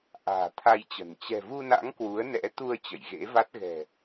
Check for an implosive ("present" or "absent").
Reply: absent